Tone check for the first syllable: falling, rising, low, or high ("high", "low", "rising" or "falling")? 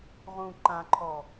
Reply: low